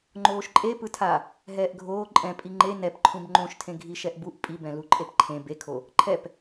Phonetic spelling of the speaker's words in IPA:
ŋ͡ǃ oː ʃ ǃʼ e p ɯ tʰ a | ɦ ɛː ʔ ɡʱ oː ǃʼ ɛ̃ pʼ i ŋ͡ǃ e n ɛ p ǃʰ ũ b ŋ͡ǃ õ ʃ tʰ ẽ ɡʱ i ʃ ɛ ʔ b u ʔ pʼ i b ɛ̃ l u ǃʼ e p ǃʰ ẽ b e kʰ o | ǃʰ ɛ p

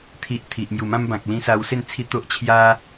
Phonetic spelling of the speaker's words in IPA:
t̪ʰ i˨ ʔ t̪ʰ i˨ ʔ m j u˨˩ m ã˦ m b ã˨ k̚ l ĩ˧ s a˧ w s e˥˧ n t͡sʰ i˦ t̪ o˦ ʔ t͡ɕʰ j a˦

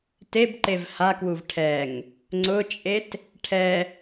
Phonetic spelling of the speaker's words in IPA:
t e b ǃ e v h a k w u v ʈʰ ɛ ŋ | ŋ͡ǀ ʊ t͡ʃʼ e t | ʈʰ ɛ

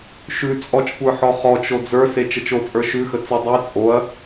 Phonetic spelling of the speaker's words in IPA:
ʃ ʉ t͡sʼ ɔ t͡ʃ kʷ ə˞ ħ ɔ χ ɔ t͡ʃ o d͡z ə˞ s e t͡ʃ ə t͡ʃ o t͡sʼ ə˞ ʃ ʉ x ə t͡s ə dˤ y t͡sʼ o ɐ̯

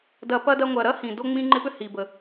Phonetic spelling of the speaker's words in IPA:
d ɐ˨ p ɐ˥ d ɐ˦ ŋʷ ɐ˨ ɾ ɐ˥ h ĩ˩ d o˦ ŋ͡m ĩ˦ ŋ͡ǃ ɪ˦ p ʏ˥ h i˩ b ə˩

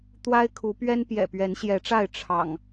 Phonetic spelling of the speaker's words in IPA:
t̪ w a˦ ɪ̯ kʰ u˨˦ p ɥ ɛ˦ n p j ɛ̰˨˩ p ɥ ɛ˨˦ n ɕ j ɛ˨˦ ʈ͡ʂ a˥˨ ɪ̯ ʈ͡ʂʰ ɑ̰˨˩ ŋ

